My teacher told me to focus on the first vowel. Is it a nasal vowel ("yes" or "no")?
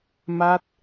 no